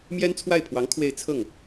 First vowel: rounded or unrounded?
unrounded